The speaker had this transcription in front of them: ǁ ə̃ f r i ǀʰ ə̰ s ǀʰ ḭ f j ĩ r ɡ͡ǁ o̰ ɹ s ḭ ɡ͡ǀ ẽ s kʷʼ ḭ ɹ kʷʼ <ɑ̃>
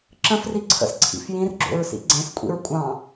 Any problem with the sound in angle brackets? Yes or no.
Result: no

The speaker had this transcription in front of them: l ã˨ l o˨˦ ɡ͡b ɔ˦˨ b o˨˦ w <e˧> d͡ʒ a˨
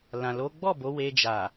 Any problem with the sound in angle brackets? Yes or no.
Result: no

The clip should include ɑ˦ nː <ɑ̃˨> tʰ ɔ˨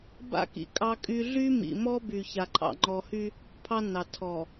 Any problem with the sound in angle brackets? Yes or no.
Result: yes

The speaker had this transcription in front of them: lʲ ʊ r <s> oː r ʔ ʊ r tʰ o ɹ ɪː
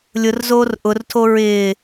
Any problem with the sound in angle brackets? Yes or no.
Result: yes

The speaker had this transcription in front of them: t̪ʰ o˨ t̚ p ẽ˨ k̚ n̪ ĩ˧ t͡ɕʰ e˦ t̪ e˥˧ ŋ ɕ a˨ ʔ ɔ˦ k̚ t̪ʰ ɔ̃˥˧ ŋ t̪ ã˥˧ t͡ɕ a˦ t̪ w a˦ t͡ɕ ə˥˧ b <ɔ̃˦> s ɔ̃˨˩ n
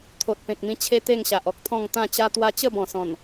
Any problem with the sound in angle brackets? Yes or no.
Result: yes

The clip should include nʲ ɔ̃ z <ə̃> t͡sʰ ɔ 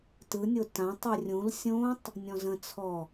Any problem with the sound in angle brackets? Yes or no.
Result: no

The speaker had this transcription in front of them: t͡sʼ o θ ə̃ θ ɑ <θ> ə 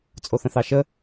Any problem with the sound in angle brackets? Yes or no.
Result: yes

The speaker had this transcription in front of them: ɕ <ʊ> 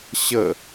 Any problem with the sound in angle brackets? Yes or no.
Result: yes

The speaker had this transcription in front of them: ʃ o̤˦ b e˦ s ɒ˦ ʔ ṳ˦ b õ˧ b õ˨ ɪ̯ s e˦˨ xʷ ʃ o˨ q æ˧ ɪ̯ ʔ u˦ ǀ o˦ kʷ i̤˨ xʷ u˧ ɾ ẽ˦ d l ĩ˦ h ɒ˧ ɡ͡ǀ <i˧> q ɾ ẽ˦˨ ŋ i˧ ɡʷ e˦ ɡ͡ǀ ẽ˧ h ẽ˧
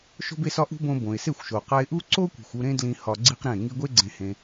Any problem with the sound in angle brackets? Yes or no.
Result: yes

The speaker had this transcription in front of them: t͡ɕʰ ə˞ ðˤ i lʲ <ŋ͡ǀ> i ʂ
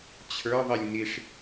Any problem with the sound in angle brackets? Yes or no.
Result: yes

